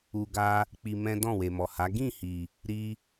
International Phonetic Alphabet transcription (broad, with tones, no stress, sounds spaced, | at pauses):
u˧ ɡ a˦ | k͡p i˧ m ɛ̃˦ d ɔ̃˦˨ w e˨ m ɔ˨ h a˨˦ ɡ ĩ˦˨ h i˨ | ɾ i˦